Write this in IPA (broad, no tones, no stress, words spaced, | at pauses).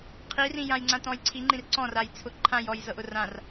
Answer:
qʰirĩjãj ŋ͡ǀãtɔ̃jǀʰi ŋ͡ǃĩrǀɔ̃ rajt͡sʰʊ ǃʰãjɔj zɤʔʊrãr